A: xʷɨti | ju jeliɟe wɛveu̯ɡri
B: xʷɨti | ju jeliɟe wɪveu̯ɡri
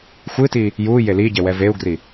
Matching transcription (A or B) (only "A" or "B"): A